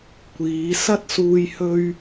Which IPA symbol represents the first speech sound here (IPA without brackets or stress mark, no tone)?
kʷ